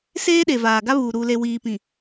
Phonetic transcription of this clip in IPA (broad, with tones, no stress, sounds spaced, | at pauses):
s eː˦ ɗ e˨ v aː˨ ɡ a˦ β uː˨ ɾ u˨ l e˨ w iː˨ p ĩ˨